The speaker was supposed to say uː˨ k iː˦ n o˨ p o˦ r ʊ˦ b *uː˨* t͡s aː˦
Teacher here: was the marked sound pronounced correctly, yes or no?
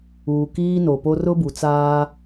no